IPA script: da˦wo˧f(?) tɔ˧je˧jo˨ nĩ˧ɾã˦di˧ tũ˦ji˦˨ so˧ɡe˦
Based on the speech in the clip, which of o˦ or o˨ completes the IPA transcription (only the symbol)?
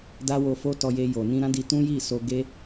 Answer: o˦